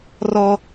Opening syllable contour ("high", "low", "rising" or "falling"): high